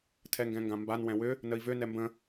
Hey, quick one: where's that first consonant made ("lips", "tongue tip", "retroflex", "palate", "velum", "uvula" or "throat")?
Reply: tongue tip